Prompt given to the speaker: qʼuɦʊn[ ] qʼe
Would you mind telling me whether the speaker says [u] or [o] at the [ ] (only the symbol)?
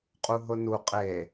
u